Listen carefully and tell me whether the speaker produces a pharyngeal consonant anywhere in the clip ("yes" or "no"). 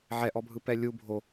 yes